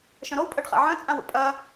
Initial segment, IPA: ʃ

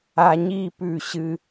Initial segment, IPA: a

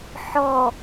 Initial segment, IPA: ħ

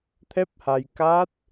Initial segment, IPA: t̪ʰ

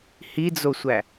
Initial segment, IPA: h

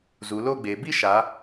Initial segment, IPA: z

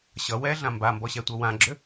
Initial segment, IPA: ɕ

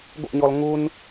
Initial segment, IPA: ɡʷ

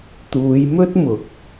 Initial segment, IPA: t̪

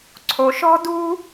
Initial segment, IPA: ǀʰ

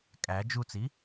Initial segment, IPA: kʼ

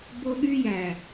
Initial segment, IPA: b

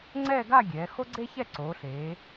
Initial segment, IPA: ŋ͡ǀ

